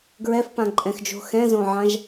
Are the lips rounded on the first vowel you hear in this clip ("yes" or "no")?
no